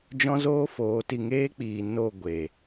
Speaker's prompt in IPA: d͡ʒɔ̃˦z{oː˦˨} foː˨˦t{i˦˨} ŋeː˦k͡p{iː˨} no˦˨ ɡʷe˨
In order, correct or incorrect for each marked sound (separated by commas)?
incorrect, incorrect, correct